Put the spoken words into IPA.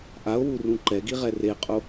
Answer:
ʔ a o̯ w u r ũ ǃ ɛ ɡ i ʁ ɛ r e qʼ o

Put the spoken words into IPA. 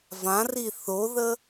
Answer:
v ã r i θ o ð ə

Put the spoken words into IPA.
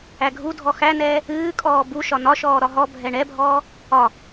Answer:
æ ɡʱ u dʱ ɔ x æ n ɛː | ɨː kʼ ɔː b u ʃ ɒ n ɒ ʃ ɔː ɾ ɒ ɦ ɔ bʱ ɛ ɳ ɛ bʱ ɔː | ɒ

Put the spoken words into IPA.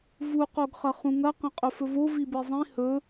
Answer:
v u q o ɡ χ ɐ χ ũ ŋ ɐ q ɐ̃ qʼ ɵ f ɵ v o v i b i zˤ ĩ h ɵ

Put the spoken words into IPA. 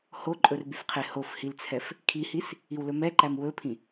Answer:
h o ǃʼ ɵ r b y f qʰ e h o f h i l t͡sʰ ɛ f | kʰ i h i s | i w l ɵ m ɛ ǃ æ m w ɵ pʰ ĩ

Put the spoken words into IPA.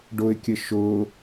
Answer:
ɖ ʊ ɪ̯ kʲ ə ʃ ʊ

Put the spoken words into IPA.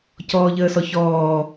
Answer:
c ɔː ʎ əː s ɔ ç ɔː

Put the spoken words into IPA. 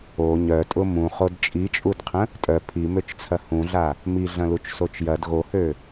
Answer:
o ɲ œ tʼ ʊ m ũ χ o d t͡ʃʼ i t͡ʃʼ u d qʰ ə̃ | tʼ œ pʰ i m ø t͡ʃ t͡sʰ ɐ h ũ ɮ a | m i ɮ ɐ̃ l u t͡ʃ s o t͡ʃ j ɐ d ɣ o h ø

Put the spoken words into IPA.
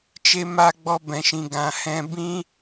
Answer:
t͡ʃ e˧ m a˧ ɡ͡b ɔ˧ b ɛ̃˨ ʃ ĩ˨ ɡ ã˨ h ɛ̃˧ b ĩ˦

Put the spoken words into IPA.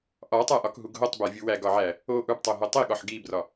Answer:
ʔ ɒ tˤ æ ʔ ɒ k ɦ u ɡ ɦ o tˤ b æ vʲ u w æ ɡ ɒ ʕ æ | o ʔ u b tˤ o ɦ o tˤ i ɠ ɒ ħ ɡ i b r ɒ

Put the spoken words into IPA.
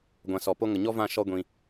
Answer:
ɡʷ ã˨ s ɔ˨ p o˦ ŋ ə˨ ɲ ɔ˦ v ã˦˨ ʃ ɔ˦ ɡʷ ĩ˧

